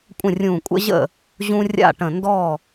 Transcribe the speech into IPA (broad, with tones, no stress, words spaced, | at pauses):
kʷʼə̃˥˩rʲũː˧˩ kʷʼə̰˦ʑə̰˥˩ | ʑũ˦rʲa̰˥˩ʈə̃˧˩ ndɔ˥˩